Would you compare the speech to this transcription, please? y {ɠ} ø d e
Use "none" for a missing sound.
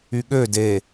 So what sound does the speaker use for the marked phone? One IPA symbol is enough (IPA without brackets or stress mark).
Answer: ɠ